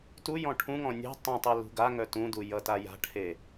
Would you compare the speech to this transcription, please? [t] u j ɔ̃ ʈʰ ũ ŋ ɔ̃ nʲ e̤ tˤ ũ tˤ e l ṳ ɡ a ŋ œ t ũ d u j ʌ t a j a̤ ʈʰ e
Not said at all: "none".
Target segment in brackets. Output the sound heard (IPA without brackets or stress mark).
t